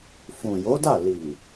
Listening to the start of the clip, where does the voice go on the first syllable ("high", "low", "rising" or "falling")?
low